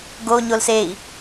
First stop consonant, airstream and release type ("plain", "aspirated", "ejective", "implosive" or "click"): plain